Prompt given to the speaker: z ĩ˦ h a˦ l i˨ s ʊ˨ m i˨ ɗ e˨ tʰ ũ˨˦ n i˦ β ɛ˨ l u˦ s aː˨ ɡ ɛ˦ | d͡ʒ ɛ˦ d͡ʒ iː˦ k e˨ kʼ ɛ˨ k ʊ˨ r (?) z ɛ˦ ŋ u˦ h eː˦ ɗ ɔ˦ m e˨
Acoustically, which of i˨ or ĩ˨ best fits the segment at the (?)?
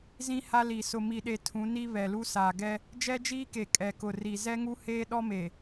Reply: i˨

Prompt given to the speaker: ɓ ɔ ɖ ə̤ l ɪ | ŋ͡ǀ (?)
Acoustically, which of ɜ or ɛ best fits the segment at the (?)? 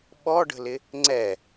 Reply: ɛ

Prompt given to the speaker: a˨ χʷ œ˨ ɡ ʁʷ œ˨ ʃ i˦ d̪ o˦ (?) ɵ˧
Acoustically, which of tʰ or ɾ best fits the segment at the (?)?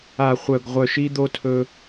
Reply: tʰ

